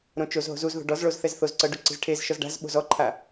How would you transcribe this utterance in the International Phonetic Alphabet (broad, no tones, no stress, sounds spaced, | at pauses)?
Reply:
ɾ õ t͡ʃ o z ɦ o̤ z u z ð o̤ ɖ ɔ z ɭ o z θ ɛ z θ o z ǀ ɤ ɖ u ǀ i̤ z ʈʰ e z ʃ ɔ z ɖ a̤ z ɓ o̤ z ɔ ǃʰ a